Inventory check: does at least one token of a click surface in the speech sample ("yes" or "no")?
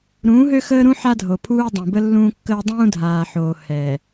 no